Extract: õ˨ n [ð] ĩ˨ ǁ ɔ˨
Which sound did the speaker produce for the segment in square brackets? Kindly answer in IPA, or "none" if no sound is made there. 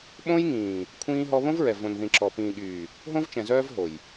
ð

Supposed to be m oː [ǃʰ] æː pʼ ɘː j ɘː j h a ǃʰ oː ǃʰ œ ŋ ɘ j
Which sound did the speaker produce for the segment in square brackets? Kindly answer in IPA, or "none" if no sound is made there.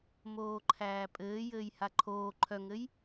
ǃʰ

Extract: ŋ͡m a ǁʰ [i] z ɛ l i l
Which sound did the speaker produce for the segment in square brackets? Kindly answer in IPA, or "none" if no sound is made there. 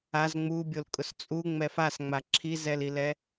i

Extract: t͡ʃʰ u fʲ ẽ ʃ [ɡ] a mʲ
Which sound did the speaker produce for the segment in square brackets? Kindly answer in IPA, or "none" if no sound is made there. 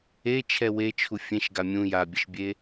ɡ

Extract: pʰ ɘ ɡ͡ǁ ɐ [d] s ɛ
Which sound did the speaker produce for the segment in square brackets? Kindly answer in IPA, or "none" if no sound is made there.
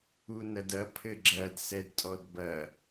d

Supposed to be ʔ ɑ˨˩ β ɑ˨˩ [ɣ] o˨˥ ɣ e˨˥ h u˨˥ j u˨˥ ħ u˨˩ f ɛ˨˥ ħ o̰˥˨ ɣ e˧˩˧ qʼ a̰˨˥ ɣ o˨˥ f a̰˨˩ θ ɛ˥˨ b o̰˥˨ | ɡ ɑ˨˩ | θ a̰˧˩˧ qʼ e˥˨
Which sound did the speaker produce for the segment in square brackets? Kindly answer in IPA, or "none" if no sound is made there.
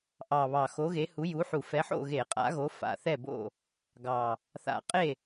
x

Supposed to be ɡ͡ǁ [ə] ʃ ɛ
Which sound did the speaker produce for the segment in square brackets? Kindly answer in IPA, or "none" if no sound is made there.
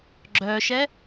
œ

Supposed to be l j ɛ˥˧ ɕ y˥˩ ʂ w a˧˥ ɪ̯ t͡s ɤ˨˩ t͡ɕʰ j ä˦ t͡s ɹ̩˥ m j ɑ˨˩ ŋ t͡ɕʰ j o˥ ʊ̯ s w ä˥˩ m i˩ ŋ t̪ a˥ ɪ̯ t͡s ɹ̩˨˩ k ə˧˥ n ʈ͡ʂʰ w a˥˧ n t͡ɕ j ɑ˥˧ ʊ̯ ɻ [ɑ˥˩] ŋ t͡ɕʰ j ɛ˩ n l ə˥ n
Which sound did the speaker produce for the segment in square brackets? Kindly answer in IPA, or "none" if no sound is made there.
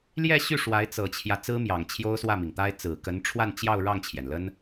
ɑ˥˩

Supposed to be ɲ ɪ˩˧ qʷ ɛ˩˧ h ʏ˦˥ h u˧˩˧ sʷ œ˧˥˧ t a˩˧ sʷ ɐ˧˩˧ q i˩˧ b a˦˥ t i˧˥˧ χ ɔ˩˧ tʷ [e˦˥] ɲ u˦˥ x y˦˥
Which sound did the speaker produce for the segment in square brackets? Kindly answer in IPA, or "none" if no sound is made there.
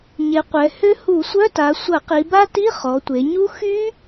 e˩˧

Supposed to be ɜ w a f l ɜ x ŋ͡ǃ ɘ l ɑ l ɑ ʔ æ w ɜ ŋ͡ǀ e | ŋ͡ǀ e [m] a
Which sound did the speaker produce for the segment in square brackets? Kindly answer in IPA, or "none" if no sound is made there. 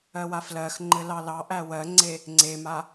m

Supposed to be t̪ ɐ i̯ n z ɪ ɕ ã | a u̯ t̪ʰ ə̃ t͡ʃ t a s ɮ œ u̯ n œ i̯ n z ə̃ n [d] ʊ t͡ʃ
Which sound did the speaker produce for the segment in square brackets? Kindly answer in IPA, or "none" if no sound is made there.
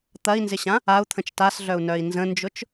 d͡ʒ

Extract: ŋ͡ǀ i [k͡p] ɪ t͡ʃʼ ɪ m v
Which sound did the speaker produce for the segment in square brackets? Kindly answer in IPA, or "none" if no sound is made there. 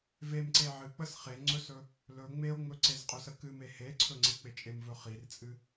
k͡p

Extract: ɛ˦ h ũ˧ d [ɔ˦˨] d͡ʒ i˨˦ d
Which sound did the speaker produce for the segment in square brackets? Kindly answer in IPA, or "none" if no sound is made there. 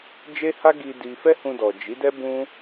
ɔ˨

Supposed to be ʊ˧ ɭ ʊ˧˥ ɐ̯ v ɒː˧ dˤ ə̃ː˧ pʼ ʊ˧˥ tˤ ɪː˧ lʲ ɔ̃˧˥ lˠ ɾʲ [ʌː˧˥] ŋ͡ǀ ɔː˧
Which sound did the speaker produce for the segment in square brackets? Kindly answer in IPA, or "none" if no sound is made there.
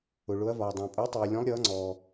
ʌː˧˥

